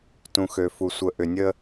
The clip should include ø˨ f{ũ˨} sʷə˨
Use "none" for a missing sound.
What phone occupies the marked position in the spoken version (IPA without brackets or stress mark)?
u˨